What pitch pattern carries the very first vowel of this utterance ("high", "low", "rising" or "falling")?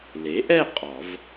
rising